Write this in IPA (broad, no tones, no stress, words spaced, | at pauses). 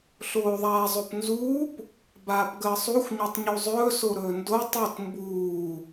ɬoːðˤaːzˤopnzuːp | baːpɡəːsˤuxʷ ɲotˤɲuzˤɵː soɾɵːndo tˤot mbuː